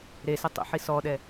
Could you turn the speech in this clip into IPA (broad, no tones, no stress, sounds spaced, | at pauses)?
ɾ e s ɪ tˤ ḛ ħ i s ɔ ɗ ɛ